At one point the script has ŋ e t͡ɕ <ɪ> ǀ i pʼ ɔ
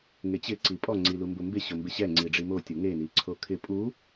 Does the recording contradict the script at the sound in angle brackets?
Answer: no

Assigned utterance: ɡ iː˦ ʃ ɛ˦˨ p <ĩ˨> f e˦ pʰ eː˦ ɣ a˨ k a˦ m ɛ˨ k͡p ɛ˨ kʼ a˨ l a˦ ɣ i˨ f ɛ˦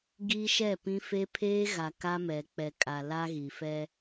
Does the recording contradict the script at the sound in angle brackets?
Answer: yes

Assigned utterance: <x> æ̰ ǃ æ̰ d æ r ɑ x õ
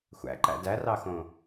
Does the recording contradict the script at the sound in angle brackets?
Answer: yes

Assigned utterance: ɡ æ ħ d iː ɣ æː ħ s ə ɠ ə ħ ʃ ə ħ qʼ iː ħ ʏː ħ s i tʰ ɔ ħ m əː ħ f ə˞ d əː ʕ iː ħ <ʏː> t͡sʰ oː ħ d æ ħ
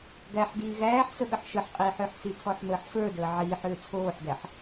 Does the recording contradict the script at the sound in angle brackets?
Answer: no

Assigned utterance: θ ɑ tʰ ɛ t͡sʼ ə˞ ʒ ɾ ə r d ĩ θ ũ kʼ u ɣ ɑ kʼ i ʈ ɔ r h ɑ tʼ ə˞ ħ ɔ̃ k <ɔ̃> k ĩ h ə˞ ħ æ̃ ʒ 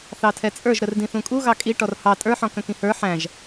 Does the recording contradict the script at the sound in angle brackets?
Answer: yes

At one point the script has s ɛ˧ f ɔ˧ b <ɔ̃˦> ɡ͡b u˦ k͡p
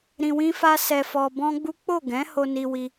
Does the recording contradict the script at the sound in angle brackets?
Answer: no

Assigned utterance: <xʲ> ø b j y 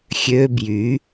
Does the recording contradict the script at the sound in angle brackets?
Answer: no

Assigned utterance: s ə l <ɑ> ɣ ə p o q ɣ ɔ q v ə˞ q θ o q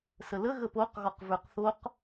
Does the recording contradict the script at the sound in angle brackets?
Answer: yes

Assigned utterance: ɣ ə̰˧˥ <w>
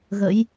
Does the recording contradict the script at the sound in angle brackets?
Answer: yes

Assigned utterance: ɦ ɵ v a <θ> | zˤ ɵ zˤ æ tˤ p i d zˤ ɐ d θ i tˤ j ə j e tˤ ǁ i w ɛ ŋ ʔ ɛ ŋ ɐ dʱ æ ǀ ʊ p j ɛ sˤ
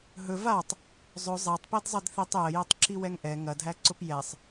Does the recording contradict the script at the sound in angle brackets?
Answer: yes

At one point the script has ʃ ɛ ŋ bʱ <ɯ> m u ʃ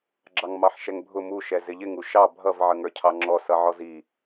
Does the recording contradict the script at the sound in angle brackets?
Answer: yes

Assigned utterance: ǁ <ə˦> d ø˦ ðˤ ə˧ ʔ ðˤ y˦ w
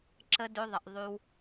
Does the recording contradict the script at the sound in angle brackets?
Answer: no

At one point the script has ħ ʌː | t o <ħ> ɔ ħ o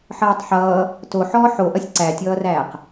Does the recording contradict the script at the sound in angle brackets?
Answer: no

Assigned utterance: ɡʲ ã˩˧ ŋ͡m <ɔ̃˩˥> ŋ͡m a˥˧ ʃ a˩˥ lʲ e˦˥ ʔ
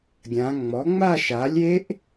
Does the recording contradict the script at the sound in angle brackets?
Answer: yes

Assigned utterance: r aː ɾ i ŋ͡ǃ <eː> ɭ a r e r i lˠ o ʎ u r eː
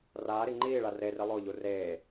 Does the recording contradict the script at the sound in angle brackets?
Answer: yes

